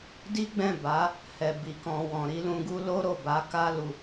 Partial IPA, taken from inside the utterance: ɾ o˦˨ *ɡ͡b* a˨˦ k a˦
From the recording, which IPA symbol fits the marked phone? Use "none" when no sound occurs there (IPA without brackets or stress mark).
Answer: b